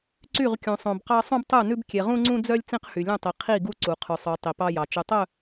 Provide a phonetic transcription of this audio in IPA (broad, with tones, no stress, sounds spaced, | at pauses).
ǀ y˦˨ ʁ kʲ ũ˨ sˤ õ˨ b q ɑ˦ sˤ ũ˦ b tˤ u˦˨ n ʉ˦ b kʲ e˨ ʁ ũ˦ ŋ͡ǀ ũ˦ d͡z œ˦ lʲ t͡s ĩ˦ q h y˨ lʲ ũ˦˨ tˤ i˨ qʰ i˦˨ ɡ u˦ ǀ u˨ qʰ ʉ˨ sˤ ʉ˨˦ tˤ i˨ p ɑ˦ j ɑ˨ t͡ʃ ɵ˨ tˤ œ˦˨